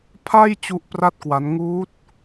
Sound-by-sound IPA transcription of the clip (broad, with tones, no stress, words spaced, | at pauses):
pʰa˥˩j t͡ɕu˥˩ʔpra˥˩t̚kwa˦˥n ŋuː˦˥t̚